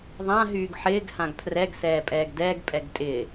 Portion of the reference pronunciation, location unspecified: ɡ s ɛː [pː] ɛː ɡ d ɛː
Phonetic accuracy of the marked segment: incorrect: pʼ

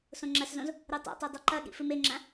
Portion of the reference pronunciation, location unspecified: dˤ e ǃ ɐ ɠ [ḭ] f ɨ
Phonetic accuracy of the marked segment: correct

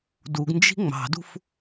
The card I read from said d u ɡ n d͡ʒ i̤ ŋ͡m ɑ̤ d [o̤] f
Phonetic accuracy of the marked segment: incorrect: ṳ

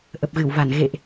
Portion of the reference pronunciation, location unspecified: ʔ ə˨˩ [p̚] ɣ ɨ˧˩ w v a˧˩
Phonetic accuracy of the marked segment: correct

